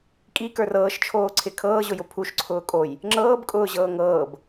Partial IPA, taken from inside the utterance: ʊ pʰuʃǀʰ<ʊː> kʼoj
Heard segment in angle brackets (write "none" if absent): ʊː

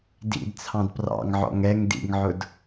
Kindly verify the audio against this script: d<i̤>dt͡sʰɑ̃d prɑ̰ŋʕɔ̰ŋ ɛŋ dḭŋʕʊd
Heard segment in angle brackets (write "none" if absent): ḭ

